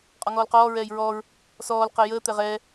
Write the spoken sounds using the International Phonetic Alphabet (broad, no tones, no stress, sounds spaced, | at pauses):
qʼ ɔ ŋ ɔː l q ɔː ɹ ɛː j ɹ ɔː ɹ | s ɔː l q ɛ j əː t̪ ɛ ʁ ɛː